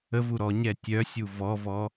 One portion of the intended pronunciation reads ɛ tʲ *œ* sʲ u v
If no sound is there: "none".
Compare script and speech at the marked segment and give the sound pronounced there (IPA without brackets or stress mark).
œ